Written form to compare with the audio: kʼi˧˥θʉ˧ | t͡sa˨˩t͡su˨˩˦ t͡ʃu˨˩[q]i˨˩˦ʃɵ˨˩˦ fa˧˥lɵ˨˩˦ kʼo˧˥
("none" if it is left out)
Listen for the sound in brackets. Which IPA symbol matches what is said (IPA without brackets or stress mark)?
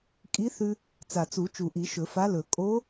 ʔ